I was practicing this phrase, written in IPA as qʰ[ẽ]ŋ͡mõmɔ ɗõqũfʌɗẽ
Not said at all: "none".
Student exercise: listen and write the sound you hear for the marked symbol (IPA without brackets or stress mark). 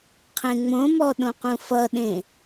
ẽ